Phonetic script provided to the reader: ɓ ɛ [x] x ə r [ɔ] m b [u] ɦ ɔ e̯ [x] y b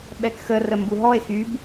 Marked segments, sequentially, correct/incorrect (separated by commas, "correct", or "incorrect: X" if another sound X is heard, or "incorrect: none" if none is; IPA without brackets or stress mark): incorrect: k, incorrect: ə, correct, correct